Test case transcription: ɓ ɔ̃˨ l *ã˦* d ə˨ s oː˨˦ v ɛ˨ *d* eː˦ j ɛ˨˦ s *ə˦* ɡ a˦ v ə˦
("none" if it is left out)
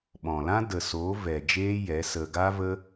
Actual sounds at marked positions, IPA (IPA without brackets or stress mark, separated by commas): ã˦, d͡ʒ, ə˧